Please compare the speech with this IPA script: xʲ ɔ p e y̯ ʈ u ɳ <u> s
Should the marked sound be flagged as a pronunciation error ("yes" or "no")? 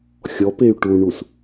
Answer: no